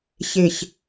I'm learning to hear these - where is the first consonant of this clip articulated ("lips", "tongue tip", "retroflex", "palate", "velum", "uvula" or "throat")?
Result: palate